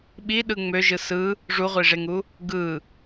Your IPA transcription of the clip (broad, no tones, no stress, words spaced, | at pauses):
ɓiɗɯ ŋ͡møʒɯ sɯ | ʐuʁʷiʐeŋu | ɡɯ